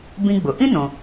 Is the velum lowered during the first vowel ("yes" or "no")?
yes